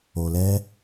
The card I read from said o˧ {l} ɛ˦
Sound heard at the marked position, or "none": l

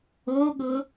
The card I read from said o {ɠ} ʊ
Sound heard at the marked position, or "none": ɠ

